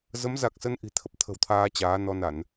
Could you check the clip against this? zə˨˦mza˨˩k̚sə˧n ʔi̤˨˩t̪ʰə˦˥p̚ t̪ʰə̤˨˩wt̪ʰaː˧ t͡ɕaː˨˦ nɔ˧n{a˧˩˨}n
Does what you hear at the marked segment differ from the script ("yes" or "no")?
no